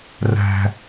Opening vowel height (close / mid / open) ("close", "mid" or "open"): open